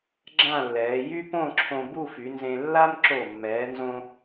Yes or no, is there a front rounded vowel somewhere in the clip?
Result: yes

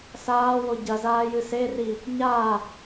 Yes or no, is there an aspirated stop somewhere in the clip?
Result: no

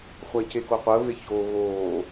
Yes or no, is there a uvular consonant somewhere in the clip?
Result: yes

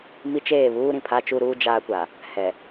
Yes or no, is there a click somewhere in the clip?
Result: no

